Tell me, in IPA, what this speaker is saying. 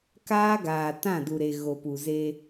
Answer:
k aː˦ ɡ aː˨ t ã˦˨ d u˨ ɾ e˨ ɣ o˨ p u˨ z e˦

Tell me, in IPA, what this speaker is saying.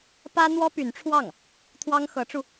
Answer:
p ä˥ n̪ w ɔ˥ p y˧˥ n ʈ͡ʂʰ w ɑ˥˩ ŋ | t̪ʰ w ɑ˥ ŋ x ɤ˧˥ ʈ͡ʂ u˧

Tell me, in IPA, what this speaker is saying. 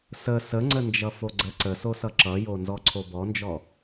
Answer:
s ə s ə ŋ͡ǀ ə n d͡ʒ ʌ f o ɡ͡ǀ ə ǀ ə s o s ʌ ǁ ʌ j o n z ɔ ǀʰ o b ɔ n d͡ʒ ɔ

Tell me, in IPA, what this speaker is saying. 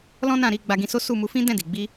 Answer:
l ɔ̃˦ n ã˦˨ ɾ i˧ ɡ͡b a˧ ɡ ĩ˧ s o˦ s u˦˨ m u˧ f ĩ˦ d ɛ̃˦˨ d i˨ ɡ͡b i˧

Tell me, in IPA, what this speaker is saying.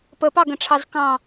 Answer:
p ə p ɑ ɡ ə̃ ʈ͡ʂʰ ɑ z k ɑ̃

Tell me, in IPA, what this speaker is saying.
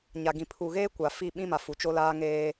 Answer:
ɲ a˨ ɡ ĩ˨ pʰ u˨ ɣ eː˦ kʷ a˨ f i˦˨ ɓ ĩ˦ m a˨ f u˨ t͡ʃ o˦ l aː˦ ŋ eː˦

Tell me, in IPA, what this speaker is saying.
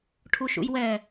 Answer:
ʈʰ u ʃ ṵ j w ɛ

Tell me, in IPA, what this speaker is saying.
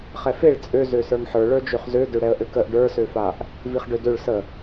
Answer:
χ ɛ f e ɭ t͡sʼ ø z ø s ə˞ ŋ ħ ə˞ ɭ ə˞ d͡ʒ ø χ z ø d ø ɽ ɛ ə̯ ʔ ø k ə ʔ ɖ ə˞ s ø f a ʔ | v i χ ɖ ø d ø ɭ s ə

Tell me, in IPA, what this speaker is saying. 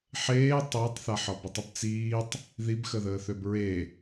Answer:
ħ eː tˤ əː tˤ θ a ħ ɒ b i tˤ ə b t͡s iː tˤ | ð i b x ə ð əː θ ø b ɹ e

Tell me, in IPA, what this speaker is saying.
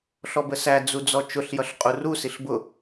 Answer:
ɬ ɔ b ə s æ d͡z u d͡z ɔ t͡ʃ ʊ ɬ j ʌ ɬ qʼ u r u s i ɬ b ʊ

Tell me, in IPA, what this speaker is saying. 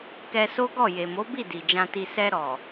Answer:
k ɛ˧ s o˦ ɡ ɔ˦˨ j e˨ m o˨˦ b i˦˨ d i˨ d͡ʒ ã˧ t i˧ s ɛ˧ ɾ ɔ˨

